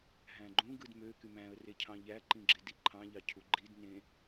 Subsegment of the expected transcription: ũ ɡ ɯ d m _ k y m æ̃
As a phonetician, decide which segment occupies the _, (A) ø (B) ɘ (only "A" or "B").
A